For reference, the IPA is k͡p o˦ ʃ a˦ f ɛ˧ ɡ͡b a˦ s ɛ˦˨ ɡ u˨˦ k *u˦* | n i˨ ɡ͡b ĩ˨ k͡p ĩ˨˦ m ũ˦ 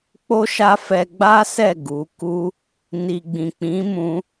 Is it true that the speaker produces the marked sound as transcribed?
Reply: yes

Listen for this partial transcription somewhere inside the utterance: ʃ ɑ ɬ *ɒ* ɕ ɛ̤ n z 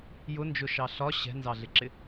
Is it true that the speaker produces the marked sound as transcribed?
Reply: yes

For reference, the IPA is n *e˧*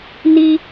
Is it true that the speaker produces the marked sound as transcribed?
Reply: no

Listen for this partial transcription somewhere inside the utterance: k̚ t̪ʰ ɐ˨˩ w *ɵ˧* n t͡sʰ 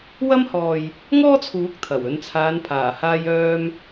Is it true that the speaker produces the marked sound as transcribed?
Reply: no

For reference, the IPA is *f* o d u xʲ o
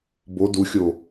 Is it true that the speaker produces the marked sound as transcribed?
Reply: no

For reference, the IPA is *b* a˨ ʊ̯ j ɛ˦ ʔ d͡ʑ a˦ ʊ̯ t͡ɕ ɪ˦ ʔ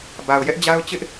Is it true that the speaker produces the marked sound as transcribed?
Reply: yes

